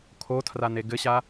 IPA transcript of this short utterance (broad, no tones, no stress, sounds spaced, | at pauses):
kʰ o tʰ r a n e ɡ ɘ ɕ a